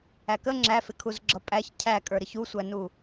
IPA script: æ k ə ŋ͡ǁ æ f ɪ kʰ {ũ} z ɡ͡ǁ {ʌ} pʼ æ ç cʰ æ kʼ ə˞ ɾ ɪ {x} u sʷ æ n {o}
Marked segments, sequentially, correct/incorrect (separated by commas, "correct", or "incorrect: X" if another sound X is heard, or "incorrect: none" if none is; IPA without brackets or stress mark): incorrect: u, correct, incorrect: ç, incorrect: u